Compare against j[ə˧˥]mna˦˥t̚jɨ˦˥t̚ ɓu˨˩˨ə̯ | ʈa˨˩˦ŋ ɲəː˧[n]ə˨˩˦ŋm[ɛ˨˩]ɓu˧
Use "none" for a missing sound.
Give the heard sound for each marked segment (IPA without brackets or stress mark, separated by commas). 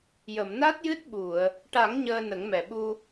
ə˨˩˨, n, ɛ˨˩